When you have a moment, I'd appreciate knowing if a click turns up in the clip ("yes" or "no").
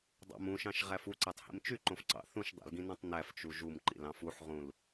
yes